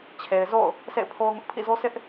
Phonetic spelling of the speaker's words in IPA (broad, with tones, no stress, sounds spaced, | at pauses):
t͡ɕʰ e˨ ɪ̯ z o̰˦˨ ʊ̯ | sʰ ḛ˦˨ ɪ̯ pʰ o˦ ʊ̯ ŋ ʊ˦ ʔ pʰ ḭ˦˨ z o˦ s ɪ˦ ʔ